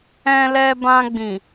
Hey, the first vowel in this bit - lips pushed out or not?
no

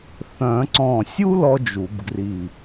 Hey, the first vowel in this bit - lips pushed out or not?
yes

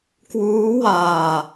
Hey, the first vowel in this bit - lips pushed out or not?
yes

